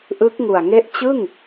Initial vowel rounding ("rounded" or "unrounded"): unrounded